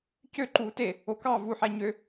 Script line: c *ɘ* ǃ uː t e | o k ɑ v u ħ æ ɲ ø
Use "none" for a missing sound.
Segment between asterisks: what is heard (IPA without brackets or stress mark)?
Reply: ø